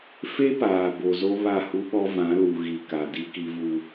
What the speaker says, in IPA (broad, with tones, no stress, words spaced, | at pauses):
fe˦paː˨ bo˨zo˦ βa˦˨hu˦ɓɔ˦ vã˨˦lu˨ɣi˨ka˨ di˦ki˦vu˦